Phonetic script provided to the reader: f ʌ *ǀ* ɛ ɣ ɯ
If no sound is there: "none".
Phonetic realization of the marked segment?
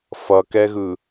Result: k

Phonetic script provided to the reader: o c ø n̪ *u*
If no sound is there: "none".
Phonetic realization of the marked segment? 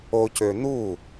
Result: u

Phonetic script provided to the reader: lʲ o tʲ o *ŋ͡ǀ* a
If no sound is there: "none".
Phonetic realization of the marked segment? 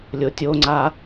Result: ŋ͡ǀ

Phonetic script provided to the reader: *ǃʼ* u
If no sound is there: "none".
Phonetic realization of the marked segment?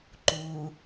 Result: ǃ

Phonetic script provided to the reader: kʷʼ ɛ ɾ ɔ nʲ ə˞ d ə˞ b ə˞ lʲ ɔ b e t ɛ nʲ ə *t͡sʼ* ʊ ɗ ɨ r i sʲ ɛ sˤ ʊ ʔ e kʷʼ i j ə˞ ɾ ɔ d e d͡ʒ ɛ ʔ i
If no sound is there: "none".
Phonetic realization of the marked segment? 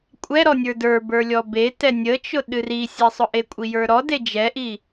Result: t͡ʃ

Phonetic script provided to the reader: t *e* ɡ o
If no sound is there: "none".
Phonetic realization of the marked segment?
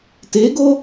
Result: e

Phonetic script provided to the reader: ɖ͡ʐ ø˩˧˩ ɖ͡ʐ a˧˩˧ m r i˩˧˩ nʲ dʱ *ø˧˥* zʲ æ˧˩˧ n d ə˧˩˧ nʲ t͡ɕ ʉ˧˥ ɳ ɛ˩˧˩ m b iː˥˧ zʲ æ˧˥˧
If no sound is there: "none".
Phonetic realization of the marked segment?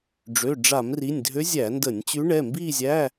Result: ø˧˥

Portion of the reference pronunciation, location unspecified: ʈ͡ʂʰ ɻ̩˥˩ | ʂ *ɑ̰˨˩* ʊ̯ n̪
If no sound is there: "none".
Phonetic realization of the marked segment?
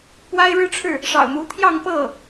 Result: ɑ̰˨˩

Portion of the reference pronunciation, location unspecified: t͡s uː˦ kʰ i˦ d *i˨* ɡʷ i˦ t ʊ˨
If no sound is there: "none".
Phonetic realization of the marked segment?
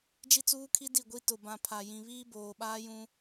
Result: i˦˨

